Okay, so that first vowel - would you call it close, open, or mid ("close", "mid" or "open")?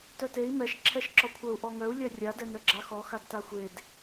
mid